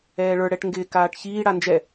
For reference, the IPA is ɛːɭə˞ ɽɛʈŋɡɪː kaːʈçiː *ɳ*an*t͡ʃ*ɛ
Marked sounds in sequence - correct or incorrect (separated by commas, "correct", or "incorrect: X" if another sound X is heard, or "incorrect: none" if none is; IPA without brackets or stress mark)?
incorrect: ɽ, incorrect: d͡ʒ